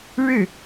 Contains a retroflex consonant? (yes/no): yes